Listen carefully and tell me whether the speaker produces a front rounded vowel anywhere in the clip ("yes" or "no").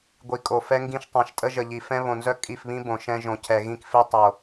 yes